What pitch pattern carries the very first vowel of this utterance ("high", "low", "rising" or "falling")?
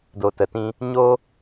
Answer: low